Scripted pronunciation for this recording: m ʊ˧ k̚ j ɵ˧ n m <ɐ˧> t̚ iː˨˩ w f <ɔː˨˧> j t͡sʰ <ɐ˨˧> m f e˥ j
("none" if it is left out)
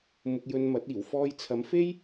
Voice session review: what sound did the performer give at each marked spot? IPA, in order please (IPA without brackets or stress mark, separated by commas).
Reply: ɐ˨˥, ɔː˧, ɐ˨˧